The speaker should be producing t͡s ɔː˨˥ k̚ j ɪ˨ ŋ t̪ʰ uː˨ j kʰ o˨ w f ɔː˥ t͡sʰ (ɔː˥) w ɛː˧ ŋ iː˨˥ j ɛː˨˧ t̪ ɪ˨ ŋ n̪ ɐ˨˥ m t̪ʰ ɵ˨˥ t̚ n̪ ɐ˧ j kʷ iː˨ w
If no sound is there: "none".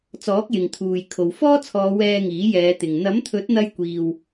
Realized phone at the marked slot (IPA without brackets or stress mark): ɔː˨˧